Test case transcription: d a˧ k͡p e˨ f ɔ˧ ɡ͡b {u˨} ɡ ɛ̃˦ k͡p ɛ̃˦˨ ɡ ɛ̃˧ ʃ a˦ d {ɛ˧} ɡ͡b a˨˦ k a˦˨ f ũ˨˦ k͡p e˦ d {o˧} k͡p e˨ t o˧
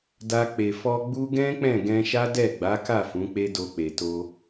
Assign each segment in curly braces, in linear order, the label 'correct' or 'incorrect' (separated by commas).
incorrect, incorrect, correct